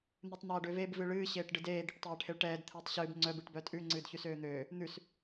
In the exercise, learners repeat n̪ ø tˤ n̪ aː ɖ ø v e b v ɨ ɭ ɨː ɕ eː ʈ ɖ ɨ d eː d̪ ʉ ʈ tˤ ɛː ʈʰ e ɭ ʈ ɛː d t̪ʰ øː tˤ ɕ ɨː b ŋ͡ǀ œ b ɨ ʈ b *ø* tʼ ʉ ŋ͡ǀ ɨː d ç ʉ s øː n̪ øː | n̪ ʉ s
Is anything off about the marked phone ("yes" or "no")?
yes